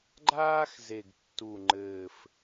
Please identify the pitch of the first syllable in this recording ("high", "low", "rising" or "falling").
high